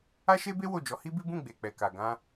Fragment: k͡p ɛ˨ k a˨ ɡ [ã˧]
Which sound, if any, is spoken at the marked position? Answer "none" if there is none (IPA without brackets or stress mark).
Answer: ã˧